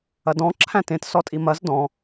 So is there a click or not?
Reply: yes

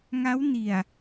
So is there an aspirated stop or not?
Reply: no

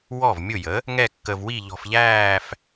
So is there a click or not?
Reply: no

